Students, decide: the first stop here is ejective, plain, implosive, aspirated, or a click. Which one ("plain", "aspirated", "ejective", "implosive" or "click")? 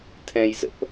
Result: aspirated